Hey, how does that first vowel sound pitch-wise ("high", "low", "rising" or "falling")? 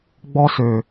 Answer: high